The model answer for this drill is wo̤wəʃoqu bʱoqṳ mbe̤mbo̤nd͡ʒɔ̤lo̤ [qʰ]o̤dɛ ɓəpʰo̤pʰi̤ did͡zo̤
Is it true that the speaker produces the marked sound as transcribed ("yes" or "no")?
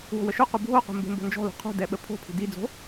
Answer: yes